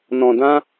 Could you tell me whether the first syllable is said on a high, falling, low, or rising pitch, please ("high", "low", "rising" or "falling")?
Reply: low